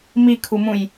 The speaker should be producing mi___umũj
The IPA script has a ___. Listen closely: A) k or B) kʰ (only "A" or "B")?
B